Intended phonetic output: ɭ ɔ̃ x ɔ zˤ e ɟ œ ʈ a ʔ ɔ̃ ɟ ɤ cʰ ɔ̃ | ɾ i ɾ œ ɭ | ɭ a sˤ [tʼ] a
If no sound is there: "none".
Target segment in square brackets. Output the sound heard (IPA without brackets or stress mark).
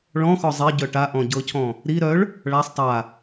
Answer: tˤ